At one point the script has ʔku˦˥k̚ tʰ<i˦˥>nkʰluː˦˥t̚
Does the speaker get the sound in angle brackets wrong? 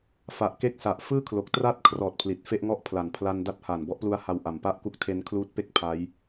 yes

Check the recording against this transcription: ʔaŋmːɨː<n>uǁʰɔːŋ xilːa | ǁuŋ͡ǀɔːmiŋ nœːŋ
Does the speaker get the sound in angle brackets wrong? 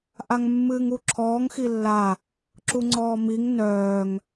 yes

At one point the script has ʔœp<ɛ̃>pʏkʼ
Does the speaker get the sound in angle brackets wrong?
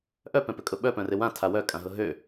no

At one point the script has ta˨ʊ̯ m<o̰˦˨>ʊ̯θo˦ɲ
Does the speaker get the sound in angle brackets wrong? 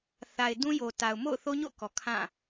no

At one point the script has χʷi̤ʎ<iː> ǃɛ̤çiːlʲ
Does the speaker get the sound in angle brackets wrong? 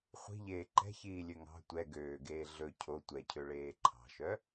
yes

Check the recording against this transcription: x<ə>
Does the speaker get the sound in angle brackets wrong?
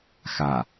yes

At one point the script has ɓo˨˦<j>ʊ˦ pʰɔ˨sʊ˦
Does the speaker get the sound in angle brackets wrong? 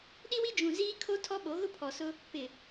yes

